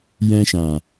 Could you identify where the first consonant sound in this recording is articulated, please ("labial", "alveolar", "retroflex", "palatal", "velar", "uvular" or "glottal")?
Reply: palatal